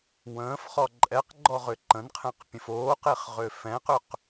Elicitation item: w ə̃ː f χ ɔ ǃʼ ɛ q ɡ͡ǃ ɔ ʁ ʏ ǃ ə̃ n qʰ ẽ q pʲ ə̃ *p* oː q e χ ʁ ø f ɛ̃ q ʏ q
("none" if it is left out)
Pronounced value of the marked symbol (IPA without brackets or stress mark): f